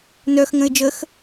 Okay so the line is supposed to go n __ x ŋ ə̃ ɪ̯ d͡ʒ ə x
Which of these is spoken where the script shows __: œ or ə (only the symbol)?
œ